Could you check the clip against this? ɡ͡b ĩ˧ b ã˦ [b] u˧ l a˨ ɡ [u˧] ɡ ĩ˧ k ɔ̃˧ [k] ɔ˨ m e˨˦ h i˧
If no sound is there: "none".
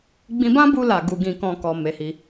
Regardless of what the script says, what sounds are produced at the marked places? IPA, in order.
b, u˧, k

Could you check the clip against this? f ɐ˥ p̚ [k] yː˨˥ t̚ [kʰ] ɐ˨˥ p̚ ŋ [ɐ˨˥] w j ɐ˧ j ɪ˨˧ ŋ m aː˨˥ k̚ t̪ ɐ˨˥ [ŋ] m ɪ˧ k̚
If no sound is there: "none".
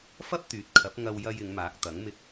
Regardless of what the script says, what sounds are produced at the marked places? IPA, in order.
t̪, kʰ, ɐ˧, ŋ

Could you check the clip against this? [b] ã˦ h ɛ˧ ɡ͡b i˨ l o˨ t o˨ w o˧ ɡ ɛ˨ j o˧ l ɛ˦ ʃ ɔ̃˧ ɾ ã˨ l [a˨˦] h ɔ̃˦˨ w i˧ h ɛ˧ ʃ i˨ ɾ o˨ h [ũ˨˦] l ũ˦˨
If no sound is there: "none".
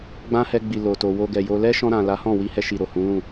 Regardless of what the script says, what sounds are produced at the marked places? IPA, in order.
ɡ͡b, a˨˦, ũ˨˦

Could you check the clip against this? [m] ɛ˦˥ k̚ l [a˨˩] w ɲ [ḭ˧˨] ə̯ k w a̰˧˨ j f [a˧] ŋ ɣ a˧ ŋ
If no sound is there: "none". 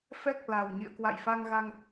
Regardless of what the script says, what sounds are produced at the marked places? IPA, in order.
f, a˨˩, ḭ˧˨, a˧

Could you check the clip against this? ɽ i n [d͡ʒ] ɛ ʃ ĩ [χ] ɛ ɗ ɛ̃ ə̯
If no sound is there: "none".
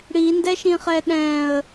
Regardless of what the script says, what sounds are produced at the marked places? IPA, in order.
d, χ

